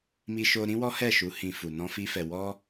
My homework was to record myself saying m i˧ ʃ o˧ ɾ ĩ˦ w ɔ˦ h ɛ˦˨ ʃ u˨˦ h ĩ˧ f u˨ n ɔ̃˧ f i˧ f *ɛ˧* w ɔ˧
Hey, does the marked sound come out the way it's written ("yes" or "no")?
no